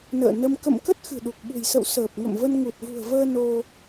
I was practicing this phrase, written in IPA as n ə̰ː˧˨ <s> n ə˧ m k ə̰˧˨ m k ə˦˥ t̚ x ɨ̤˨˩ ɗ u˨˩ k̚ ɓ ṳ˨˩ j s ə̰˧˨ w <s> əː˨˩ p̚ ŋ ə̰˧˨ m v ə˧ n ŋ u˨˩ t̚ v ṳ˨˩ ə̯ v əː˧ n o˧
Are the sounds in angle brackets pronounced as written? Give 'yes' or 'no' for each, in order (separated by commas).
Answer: no, yes